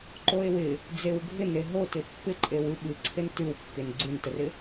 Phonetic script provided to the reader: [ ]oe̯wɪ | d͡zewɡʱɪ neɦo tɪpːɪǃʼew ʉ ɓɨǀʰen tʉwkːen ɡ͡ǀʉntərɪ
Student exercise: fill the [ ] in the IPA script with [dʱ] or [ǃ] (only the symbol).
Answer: ǃ